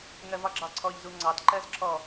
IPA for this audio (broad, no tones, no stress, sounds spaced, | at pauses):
ŋ ɜ v ɒ ɡ͡ǁ ɑ ǀʰ ɔ ʎ z u ŋ͡ǀ ɑ t ǃ ɜ z ǁʰ ɔ